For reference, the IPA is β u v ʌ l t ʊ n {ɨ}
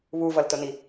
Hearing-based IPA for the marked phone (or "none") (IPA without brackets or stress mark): i